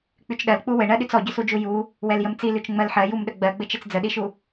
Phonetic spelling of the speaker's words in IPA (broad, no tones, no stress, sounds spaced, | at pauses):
k͡p y t͡ʃ ɗ ɜ l k͡p u w ɘ ɳ ɜ ɗ y t͡s ɔ ɟ ʏ s u d͡ʒ u j u | w ɛ l j ə m t͡s i l y t͡ʃ ŋ͡m ɜ l ħ ɜ j u m ɗ ə ɡ͡b ɜ ɡ͡b ɘ t͡ʃ ɘ t͡s d͡z ə ɗ i ʃ u